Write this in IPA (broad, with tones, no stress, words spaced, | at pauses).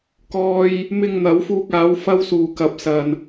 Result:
kɔː˧j | mɪ˧ŋn̪ɐ˨˥wfuː˧k̚aː˨˥w fɐ˥wsuː˨˧ kɐ˨˥p̚sɐ˨n